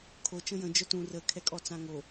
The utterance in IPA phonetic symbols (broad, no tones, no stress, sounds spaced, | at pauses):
kʰ o t͡ʃ ə̃ j ə̃ d͡ʒ œ t ũ r ə kʰ ɛ kʼ ɔ t͡s ã ŋ o